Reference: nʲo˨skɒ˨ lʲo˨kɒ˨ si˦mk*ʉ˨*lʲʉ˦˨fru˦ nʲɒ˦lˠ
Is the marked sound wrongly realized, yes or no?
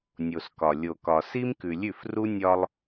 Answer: no